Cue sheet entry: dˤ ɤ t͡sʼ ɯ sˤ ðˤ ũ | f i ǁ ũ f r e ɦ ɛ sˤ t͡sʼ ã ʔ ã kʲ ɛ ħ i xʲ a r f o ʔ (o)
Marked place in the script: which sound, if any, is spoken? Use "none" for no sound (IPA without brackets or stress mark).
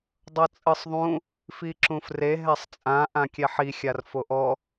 ɔ